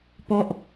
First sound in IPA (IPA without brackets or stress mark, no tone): p